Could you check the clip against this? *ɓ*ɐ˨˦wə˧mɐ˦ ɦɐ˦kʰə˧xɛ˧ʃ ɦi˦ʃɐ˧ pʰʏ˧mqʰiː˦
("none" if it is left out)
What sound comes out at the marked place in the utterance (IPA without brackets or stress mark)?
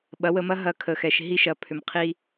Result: ɓ